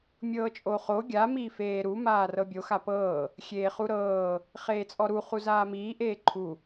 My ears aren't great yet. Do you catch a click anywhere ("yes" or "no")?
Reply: yes